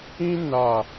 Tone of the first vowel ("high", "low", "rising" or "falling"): high